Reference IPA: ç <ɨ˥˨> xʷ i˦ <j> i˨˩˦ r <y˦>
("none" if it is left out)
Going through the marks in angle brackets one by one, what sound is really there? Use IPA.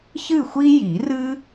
ɨ˥˨, j, ɨ˦

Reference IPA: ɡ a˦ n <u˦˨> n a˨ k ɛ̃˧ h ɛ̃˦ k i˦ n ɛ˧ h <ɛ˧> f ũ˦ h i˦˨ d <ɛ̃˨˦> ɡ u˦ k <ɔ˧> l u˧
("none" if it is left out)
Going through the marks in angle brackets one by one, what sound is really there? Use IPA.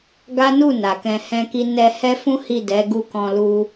u˦˨, ɛ˦, ɛ˨˦, ɔ̃˧

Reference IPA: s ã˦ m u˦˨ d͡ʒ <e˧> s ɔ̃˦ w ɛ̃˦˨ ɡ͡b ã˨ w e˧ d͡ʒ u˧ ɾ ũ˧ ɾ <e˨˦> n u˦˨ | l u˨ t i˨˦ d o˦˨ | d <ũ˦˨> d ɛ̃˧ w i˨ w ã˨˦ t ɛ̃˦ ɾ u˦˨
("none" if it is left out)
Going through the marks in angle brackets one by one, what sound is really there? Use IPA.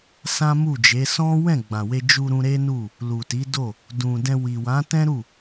e˨˦, e˦, ũ˨

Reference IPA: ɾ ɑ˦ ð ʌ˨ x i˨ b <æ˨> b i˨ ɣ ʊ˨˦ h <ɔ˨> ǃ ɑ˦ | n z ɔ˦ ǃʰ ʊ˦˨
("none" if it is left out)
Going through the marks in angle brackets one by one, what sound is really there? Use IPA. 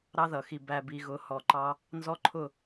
æ˨, ɔ˨

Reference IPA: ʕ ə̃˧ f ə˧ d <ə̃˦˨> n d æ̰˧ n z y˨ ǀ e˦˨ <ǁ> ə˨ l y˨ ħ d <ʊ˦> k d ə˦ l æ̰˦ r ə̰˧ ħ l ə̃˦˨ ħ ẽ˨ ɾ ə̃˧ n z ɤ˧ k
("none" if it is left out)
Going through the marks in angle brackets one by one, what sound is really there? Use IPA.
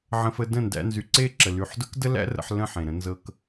ə̃˦˨, ǁ, ʊ˦

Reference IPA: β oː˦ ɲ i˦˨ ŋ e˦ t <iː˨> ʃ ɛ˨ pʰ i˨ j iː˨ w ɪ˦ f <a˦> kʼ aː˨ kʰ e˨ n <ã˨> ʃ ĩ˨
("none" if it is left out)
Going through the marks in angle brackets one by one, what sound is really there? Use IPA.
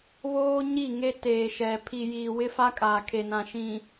eː˨, a˦, ã˨

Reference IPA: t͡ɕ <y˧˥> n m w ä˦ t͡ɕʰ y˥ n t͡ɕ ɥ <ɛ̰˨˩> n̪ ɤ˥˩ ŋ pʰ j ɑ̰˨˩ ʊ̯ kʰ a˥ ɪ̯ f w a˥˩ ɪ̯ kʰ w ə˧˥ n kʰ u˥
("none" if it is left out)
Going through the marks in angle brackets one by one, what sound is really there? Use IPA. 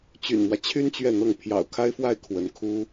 y̰˨˩, ɛ˥˧

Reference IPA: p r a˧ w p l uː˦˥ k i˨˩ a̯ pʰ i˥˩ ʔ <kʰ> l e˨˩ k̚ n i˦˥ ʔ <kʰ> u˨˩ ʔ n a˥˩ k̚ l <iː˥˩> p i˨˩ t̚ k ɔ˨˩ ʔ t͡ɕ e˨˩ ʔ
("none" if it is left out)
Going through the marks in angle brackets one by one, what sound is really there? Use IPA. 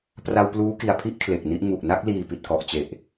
kʰ, ŋ, iː˨˩

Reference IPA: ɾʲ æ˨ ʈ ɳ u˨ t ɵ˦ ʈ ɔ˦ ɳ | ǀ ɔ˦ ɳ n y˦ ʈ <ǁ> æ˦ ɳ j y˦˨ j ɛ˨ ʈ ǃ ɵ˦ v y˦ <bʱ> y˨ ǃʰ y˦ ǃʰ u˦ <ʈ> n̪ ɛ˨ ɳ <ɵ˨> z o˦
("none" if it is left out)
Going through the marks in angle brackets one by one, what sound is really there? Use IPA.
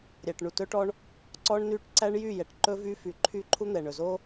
ǀ, f, none, ɵ˨

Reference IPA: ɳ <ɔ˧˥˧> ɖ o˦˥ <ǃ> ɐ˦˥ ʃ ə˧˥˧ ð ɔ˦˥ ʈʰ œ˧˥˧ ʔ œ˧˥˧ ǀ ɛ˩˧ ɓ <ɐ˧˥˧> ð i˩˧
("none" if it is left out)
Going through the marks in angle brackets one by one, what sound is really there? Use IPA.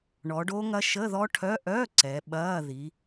ɔ˩˧, ŋ, ɐː˧˥˧

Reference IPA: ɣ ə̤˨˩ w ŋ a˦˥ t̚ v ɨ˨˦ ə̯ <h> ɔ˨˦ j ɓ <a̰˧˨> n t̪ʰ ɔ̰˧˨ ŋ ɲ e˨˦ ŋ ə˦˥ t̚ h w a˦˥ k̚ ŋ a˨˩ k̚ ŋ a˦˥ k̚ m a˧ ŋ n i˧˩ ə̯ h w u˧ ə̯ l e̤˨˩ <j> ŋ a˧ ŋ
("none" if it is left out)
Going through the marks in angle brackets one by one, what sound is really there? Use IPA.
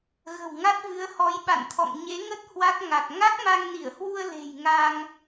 h, a̰˧˨, j

